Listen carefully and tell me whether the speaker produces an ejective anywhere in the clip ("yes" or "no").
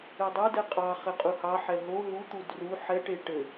yes